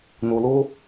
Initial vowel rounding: rounded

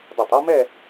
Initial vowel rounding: rounded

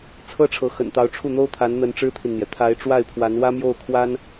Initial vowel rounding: unrounded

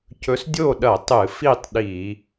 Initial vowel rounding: rounded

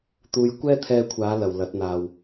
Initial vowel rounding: rounded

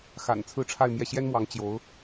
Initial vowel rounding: unrounded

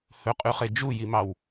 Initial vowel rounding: rounded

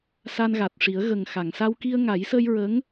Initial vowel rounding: unrounded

